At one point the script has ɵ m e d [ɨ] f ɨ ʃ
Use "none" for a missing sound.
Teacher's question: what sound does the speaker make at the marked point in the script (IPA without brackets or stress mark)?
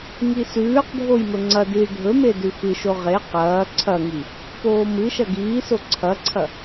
ʉ